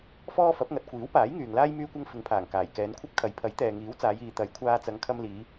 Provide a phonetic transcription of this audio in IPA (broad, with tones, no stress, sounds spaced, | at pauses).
f ɔː˥ f ɐ˨˥ p̚ ŋ ɐ˨ t̚ kʷ iː˨˥ w p aː˨˥ j ŋ yː˨ ŋ l aː˥ j m yː˥ kʷ ɐ˥ ŋ f ɪ˨˧ ŋ pʰ aː˨˩ ŋ k aː˨˩ j k ɛː˨˧ n kʷʰ ɐ˥ p̚ kʰ ɐ˨˧ j pʰ ɐ˨˥ j t̪ ɛː˨ ŋ iː˨˥ w t͡s aː˨˧ j iː˨ t̪ ɐ˨˥ j kʷʰ aː˧ t͡s ɐ˨˧ ŋ kʰ ɐ˧ m l iː˨˧